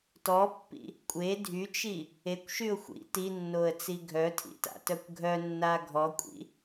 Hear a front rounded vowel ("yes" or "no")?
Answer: yes